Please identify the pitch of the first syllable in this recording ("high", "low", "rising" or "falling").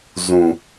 low